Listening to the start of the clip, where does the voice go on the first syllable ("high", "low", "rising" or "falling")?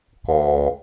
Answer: low